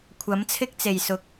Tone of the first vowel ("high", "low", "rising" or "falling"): rising